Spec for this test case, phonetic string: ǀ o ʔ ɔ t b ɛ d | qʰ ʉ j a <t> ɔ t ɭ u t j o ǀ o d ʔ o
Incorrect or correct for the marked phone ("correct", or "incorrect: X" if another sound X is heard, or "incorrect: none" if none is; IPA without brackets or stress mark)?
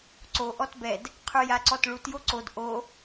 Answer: incorrect: ǀ